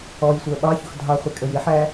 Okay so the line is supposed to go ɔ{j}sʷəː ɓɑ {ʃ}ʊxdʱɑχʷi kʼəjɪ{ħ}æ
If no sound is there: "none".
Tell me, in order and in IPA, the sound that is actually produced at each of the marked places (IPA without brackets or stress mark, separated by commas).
j, ç, ħ